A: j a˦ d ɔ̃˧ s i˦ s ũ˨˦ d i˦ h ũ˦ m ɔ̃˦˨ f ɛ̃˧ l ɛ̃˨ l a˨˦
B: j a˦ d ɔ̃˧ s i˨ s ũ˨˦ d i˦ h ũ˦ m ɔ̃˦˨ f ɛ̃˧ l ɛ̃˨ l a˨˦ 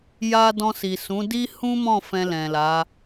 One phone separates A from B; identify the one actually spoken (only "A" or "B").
B